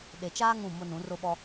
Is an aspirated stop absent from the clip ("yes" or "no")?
yes